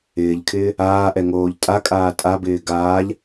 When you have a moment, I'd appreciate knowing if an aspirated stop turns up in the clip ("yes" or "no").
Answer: yes